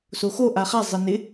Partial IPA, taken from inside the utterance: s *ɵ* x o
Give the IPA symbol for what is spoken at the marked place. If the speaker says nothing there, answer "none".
o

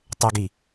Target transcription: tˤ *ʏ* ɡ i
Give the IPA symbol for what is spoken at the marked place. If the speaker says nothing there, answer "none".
ʏ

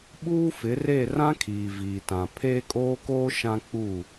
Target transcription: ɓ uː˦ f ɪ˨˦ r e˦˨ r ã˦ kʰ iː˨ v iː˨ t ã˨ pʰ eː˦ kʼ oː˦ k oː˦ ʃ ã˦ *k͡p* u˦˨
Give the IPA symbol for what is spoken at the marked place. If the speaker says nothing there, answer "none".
k͡p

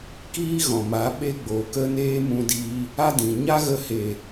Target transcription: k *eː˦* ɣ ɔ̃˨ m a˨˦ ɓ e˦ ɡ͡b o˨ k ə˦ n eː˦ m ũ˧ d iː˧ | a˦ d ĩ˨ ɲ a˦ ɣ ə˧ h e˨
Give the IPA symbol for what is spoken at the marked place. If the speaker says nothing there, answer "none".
iː˦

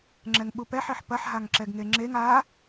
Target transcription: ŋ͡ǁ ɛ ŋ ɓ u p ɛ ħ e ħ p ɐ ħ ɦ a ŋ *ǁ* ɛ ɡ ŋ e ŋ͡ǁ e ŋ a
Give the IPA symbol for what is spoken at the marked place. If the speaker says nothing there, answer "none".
ǁ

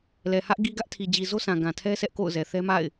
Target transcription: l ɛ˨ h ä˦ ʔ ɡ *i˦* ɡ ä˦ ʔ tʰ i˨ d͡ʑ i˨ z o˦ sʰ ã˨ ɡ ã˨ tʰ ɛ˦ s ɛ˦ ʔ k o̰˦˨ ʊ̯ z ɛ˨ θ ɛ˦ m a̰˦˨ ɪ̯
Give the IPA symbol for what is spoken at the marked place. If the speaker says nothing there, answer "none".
i˦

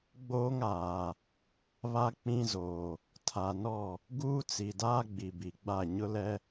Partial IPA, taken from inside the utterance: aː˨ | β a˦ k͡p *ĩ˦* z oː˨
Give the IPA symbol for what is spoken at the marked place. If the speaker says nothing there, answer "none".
ĩ˦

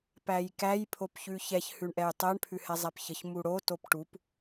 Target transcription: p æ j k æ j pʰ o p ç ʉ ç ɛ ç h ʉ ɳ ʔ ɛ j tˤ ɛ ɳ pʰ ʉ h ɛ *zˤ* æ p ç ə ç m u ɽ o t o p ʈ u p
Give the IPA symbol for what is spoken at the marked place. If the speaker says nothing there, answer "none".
zˤ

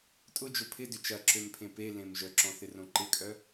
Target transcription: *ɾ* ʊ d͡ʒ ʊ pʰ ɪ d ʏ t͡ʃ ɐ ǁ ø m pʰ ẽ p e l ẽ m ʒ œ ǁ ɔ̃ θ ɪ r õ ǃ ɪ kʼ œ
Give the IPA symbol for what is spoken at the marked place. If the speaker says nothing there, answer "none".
tʼ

